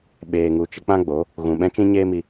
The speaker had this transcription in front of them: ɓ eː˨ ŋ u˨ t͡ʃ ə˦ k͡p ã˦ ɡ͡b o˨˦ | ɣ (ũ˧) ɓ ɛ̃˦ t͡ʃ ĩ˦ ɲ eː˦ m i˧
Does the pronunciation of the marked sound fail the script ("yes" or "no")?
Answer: yes